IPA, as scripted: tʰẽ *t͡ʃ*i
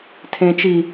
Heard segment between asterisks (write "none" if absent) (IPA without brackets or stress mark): t͡ʃ